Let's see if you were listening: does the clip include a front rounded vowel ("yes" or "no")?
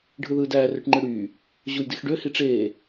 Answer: yes